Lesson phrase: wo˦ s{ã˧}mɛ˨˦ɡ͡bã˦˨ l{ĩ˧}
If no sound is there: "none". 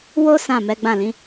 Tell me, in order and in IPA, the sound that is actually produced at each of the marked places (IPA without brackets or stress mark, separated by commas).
ã˦˨, ĩ˨˦